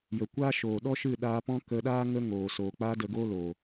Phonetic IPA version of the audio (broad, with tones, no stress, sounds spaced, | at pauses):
j ə˨ kʷ a˦ ʃ oː˨ ɗ ɔ˦ ʃ ɨ˦˨ ɗ aː˧ p ɔ̃˦ k ə˧ ɗ aː˦ ŋ ə˦ ŋ oː˨ s oː˨ k͡p a˦ d ə˧ ɡ oː˦ l oː˨